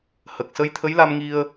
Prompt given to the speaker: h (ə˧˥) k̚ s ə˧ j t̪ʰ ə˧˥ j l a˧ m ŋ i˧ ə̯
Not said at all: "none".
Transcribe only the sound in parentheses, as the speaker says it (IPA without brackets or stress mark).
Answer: ə˨˩